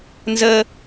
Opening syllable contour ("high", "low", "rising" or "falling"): high